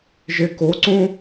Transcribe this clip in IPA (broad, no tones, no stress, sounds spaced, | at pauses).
ʒ e k o ǀ õ